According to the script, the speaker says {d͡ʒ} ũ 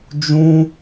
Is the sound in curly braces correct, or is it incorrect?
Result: correct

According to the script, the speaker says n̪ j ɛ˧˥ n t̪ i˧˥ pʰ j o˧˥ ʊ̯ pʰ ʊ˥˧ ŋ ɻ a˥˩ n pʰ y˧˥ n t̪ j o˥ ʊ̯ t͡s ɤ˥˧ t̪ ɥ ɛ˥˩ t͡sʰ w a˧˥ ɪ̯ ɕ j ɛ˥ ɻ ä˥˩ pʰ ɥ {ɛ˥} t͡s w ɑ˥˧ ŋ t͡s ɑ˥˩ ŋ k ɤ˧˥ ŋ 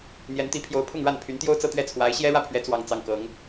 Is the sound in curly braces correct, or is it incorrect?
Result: incorrect: ɛ˧˥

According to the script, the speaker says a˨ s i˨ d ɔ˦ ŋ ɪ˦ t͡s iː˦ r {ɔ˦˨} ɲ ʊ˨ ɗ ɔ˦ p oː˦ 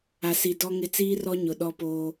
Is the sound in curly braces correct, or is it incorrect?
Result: incorrect: ɔ˦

